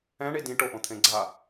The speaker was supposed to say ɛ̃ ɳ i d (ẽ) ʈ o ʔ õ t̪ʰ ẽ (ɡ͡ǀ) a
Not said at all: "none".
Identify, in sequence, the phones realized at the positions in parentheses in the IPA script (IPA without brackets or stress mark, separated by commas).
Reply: ĩ, ɡ͡ǀ